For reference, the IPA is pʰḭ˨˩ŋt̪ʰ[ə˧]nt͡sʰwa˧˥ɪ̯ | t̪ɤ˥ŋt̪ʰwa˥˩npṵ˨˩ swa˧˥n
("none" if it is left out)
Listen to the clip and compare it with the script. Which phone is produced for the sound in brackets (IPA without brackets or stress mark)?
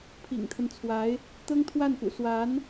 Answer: ə˦